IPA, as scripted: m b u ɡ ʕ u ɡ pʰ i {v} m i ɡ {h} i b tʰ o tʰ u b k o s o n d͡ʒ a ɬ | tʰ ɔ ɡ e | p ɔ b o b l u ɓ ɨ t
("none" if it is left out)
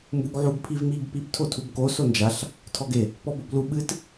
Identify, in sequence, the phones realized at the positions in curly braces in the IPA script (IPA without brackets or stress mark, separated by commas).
v, p